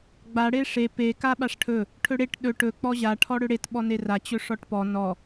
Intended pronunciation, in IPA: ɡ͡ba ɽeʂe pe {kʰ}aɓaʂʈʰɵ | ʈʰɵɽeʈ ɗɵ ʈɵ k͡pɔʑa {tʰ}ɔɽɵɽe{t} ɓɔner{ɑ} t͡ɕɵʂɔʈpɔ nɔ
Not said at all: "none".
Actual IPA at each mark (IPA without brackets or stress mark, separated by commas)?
k, ʈʰ, t, a